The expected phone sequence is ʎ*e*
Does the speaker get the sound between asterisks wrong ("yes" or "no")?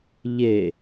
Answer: no